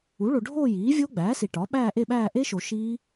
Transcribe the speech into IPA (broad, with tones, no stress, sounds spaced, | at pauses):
u˩˥ ɭ o˨ ɖʱ oː˥˧ j iː˩˥ vʲ o˦˥ ɡ͡b æː˩˥ s i˨ ʈ ɒː˩˥ ɓ æː˥˧ ʔ e˥˧ ɓ æː˥˧ ʔ e˦˥ ʃ o˨ ʃ iː˦˥